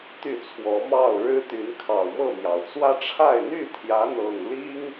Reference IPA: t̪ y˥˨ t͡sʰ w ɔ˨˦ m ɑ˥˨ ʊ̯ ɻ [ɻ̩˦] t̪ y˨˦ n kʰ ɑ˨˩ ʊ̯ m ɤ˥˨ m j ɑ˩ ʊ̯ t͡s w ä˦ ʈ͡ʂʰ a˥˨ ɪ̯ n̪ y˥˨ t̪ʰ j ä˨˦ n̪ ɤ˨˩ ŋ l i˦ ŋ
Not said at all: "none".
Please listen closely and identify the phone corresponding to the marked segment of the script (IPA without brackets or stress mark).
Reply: ɻ̩˦